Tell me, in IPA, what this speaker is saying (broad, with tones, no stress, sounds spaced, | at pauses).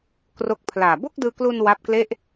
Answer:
k r o˦˥ k̚ pʰ l aː˨˩ b o˥˩ k̚ d ɯː˧ k l u˧ n w a˦˥ p̚ k l e˥˩ ʔ